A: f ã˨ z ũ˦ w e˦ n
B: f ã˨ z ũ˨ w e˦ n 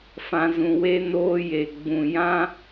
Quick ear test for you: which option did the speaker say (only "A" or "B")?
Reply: B